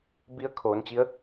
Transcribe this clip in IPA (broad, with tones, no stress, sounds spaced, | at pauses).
b i˧˥ ə̯ kʰ oː˩˧ n t͡ɕ i˧˥ ə̯